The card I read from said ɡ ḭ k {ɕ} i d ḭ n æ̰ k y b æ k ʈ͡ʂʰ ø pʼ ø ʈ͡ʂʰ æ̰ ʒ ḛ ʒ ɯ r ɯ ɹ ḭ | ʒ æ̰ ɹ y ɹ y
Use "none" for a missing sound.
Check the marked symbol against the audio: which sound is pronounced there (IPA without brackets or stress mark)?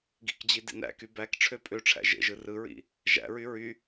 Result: d͡ʑ